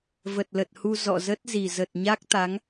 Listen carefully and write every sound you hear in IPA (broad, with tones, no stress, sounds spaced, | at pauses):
v ə˨˩ t̚ l ə˨˩ t̚ h u˧ z ɔ̰˧˨ z ə˦˥ t̚ z i˨˩ z ə˨˩ t̚ ɲ a˦˥ k̚ t̪ a˨˦ ŋ